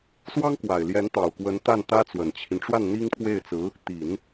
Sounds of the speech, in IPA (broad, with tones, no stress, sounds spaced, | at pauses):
s w ɑ˥ ŋ k w a˨˩ ɪ̯ l j ɛ˧˥ n t̪ ɑ˨˩ ʊ̯ k w ə˧˥ n t̪ a˥˩ n t̪ ä˥ t͡s w ə˨˩ n t͡ɕʰ i˦ n ʈ͡ʂ w a˥˩ n n̪ i˥ ŋ pʰ w e˥˩ ɪ̯ t͡s ɹ̩˧˥ | t̪ i˨˩˦ n